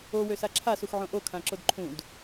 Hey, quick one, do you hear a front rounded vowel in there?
yes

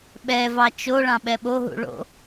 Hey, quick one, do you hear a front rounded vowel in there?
no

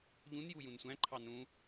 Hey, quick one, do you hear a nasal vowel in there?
yes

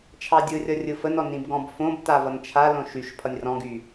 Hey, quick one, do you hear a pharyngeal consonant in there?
no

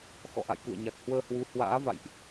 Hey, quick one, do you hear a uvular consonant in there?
no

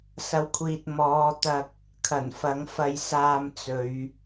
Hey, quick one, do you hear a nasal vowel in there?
no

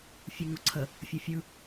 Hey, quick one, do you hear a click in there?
yes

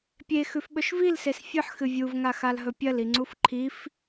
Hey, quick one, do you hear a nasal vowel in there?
no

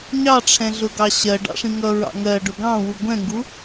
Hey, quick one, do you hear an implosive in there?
no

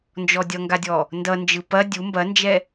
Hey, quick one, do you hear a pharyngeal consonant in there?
no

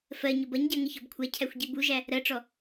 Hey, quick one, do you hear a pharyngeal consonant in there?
no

